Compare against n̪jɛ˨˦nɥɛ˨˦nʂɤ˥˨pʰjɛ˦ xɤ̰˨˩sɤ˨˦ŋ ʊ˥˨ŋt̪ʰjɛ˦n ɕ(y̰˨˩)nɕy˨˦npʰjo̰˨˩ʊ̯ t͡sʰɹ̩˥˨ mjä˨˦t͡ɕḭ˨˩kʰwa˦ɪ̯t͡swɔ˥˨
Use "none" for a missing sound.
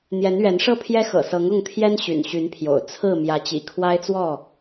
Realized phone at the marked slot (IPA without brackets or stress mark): y̰˨˩